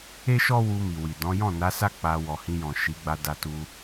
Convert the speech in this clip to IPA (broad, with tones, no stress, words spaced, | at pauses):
e˦ʃɔ˦ wu˧mi˨wi˨ dɔ̃˨˦ jɔ̃˦˨ na˨˦sa˦ k͡pa˧ wɔ˨hĩ˧jɔ̃˨ ʃi˨˦ɡ͡ba˧ da˧tu˧